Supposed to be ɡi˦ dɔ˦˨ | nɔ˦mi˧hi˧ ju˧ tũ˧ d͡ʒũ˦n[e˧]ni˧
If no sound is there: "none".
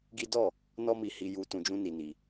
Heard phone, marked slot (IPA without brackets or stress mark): i˧